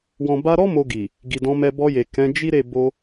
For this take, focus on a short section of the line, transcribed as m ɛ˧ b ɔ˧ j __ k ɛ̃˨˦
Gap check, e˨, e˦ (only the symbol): e˨